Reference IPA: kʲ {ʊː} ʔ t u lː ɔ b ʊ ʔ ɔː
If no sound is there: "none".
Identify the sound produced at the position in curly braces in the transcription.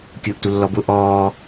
ʊː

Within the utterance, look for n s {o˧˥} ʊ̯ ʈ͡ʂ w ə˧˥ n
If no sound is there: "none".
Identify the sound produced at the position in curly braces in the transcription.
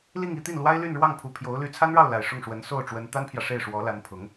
o˥˩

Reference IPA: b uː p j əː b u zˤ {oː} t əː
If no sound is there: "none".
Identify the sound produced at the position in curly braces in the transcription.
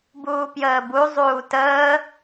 uː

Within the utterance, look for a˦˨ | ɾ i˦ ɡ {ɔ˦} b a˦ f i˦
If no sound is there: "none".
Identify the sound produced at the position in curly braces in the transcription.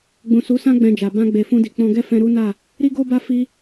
o˦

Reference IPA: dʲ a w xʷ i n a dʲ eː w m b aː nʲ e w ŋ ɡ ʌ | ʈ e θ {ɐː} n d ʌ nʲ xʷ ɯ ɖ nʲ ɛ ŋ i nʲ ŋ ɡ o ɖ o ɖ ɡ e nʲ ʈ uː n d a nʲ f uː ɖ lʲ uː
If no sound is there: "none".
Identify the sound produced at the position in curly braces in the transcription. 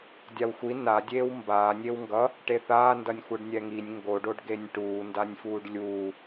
aː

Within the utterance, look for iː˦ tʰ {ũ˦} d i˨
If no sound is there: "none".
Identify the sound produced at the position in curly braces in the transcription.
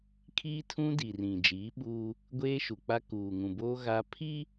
ũ˦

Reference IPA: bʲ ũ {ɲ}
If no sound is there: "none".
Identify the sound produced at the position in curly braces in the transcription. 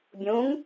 ŋ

